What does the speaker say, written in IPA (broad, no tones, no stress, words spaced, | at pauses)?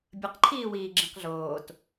bʲəqǃʰiːwiː ɡ͡ǁĩqɮoːt